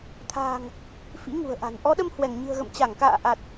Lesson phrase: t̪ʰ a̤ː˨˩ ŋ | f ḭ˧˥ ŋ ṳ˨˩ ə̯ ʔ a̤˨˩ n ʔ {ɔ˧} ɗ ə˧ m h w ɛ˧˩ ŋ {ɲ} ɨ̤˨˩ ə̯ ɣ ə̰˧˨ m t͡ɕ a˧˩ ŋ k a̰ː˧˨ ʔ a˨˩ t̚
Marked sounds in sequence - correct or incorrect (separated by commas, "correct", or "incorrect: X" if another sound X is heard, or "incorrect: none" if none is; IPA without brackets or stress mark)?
incorrect: ɔ˨˦, correct